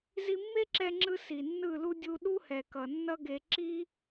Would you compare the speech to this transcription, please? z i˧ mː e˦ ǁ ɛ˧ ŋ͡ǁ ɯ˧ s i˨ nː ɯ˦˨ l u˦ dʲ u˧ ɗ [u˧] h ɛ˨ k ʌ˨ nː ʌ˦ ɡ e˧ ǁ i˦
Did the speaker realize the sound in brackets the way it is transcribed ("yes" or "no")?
no